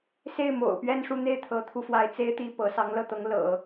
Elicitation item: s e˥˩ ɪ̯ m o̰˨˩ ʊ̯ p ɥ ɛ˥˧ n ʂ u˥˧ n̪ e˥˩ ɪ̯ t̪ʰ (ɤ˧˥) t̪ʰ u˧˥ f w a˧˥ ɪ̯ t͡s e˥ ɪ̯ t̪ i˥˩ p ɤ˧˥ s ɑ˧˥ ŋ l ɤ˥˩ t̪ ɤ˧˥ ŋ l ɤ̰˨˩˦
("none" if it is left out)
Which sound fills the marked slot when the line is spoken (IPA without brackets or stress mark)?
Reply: ɤ˧˥